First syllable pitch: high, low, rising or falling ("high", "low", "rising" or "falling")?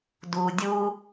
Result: low